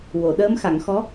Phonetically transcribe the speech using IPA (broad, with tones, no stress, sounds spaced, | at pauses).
w o˨˩˨ ɗ əː˧˥ m x a˨˩˨ ŋ x ɔ˧˥